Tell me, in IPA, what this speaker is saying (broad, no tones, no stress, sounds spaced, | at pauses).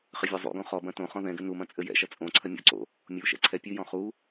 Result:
χ ɘ vʲ ɔ zˤ ṵ ɡ õ χ ɔ b ɐ̃ t õ χ ɔ̃ ð ɛ̃ ɡ ɘ n u m ɐ̃ t͡sʼ ɘ j ɛ̰ ʃ ɐ t͡sʼ õ ǀʰ ɐ mʲ o̰ ǀ o̰ | mʲ u ʃ ɛ̰ ǀʰ ɛ pʲ ɨ j ɔ̃ χ u